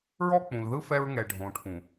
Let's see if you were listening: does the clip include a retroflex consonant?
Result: yes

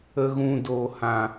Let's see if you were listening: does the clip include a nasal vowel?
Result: yes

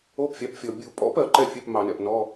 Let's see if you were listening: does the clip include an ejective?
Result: yes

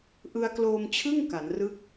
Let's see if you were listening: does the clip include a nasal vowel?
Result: no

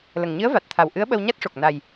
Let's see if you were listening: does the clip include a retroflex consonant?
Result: yes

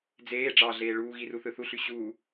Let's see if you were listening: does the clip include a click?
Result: no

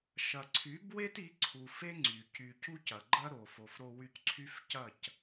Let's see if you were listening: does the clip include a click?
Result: yes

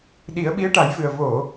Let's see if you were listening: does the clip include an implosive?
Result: yes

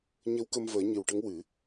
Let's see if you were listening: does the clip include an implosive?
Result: no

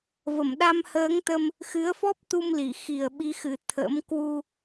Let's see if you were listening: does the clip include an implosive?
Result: yes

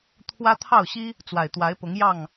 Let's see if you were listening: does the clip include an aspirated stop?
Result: yes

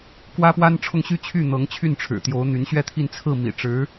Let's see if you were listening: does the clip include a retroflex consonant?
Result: yes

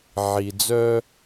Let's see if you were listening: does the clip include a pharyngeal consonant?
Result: yes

